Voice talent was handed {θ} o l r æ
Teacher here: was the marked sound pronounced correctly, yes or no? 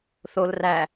yes